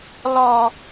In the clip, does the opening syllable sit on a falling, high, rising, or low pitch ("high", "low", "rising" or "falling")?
low